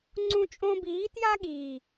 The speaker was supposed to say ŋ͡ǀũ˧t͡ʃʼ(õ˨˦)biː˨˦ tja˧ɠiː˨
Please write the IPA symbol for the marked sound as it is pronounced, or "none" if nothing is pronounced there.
õ˧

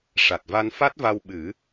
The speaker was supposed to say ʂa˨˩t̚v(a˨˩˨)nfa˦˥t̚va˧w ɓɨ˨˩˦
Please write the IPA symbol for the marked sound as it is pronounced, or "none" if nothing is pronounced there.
a˧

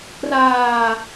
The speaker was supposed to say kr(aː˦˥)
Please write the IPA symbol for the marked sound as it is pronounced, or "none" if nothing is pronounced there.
aː˧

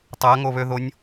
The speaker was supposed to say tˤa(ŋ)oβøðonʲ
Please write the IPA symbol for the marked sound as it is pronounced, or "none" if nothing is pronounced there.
ŋ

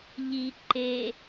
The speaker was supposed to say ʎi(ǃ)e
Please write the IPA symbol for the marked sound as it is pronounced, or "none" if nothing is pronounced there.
ǃ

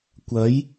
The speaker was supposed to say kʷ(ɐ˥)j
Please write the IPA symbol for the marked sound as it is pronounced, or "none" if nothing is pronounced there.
ɐ˨˥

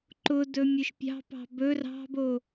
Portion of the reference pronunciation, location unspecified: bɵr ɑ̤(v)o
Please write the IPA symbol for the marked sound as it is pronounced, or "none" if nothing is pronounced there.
b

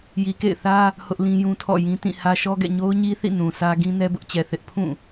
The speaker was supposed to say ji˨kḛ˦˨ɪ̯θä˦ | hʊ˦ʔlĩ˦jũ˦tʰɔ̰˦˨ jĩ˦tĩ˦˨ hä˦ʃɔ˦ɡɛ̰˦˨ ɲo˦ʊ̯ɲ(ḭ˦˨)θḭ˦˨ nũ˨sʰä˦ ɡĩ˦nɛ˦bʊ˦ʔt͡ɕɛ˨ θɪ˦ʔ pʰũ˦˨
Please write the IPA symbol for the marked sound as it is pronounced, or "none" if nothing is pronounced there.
i˦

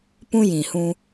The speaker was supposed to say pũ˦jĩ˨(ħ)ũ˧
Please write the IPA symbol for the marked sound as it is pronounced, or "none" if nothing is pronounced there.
h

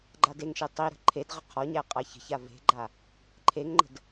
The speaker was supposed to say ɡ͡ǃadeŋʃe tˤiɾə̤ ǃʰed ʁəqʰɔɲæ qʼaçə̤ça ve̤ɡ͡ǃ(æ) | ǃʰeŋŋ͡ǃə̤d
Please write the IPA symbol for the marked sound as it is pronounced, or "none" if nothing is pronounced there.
a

